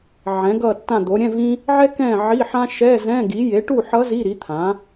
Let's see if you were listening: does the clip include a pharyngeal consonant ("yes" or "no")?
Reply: yes